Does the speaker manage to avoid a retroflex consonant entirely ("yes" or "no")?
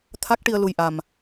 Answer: no